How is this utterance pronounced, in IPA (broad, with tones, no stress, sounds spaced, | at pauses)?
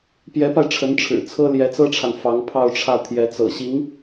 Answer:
p j ɛ˧˥ p a˧ ɪ̯ ʈ͡ʂʰ ə˧˥ n ʈ͡ʂʰ ɻ̩˨˩ t͡sʰ ɤ˥ l j ɛ˧˥ t͡s ɤ˥ ʈ͡ʂʰ a˨ n f ɑ˧˥ ŋ pʰ ɑ˥˧ ʊ̯ ʈ͡ʂʰ ä˥˩ t̪ʰ j ɛ˧˥ t͡s ɤ̰˨˩ ɕ i˧˥ ŋ